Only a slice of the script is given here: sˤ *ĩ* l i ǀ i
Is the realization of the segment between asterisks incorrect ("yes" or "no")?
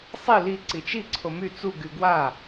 yes